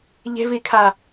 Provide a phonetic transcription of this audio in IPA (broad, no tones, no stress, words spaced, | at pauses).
ʎe̤vikʰa